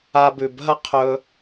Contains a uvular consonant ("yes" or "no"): yes